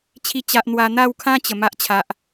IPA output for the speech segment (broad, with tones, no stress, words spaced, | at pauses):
t͡ɕʰi˥˧ t͡ɕa˦ʔ n̪wa˧n̪a˥˧wkʰã˦ t͡ɕə˨˩ ma˦ʔt͡ɕʰa˨ʔ